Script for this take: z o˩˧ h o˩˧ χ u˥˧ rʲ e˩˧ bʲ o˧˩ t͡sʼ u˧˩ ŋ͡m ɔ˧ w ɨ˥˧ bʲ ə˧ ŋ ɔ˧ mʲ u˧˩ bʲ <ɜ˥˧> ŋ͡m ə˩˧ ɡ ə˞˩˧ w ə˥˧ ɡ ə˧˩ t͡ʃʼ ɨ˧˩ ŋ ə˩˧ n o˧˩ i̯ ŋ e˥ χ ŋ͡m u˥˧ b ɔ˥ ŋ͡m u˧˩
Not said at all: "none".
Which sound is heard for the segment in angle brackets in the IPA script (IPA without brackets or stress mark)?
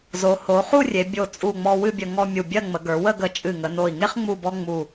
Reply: ɜ˥˧